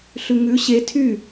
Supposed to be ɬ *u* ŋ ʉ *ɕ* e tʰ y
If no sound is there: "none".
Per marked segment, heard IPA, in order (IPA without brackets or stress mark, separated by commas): ʉ, ɕ